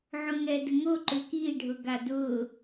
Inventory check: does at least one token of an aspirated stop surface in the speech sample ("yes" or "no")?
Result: no